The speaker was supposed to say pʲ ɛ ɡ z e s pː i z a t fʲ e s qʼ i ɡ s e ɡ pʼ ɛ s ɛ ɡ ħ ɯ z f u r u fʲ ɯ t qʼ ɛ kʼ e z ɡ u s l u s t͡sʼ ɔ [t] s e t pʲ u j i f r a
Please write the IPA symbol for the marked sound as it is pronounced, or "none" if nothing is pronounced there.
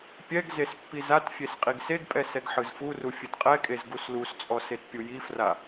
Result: none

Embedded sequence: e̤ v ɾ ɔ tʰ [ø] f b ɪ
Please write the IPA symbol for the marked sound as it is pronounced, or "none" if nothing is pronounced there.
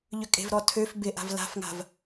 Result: ø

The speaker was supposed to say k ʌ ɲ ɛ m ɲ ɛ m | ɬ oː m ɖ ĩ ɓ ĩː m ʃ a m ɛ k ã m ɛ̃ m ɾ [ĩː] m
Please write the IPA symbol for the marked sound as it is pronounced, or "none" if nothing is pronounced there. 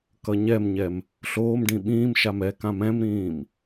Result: ĩː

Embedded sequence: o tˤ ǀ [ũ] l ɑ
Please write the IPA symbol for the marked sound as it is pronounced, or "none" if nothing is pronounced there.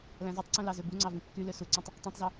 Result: ũ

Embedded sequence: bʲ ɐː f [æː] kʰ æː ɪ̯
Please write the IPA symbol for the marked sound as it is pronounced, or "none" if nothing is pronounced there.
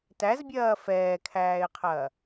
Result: ɛː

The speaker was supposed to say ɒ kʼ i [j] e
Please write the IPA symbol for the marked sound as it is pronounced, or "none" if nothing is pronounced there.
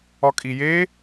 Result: j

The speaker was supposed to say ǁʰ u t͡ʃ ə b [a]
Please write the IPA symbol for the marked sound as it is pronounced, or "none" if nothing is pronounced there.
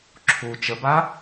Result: a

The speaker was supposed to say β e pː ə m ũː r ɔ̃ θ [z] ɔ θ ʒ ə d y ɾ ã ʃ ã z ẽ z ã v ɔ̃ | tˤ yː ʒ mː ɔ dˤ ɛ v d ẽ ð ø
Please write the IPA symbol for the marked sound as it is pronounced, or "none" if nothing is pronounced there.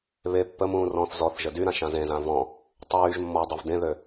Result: z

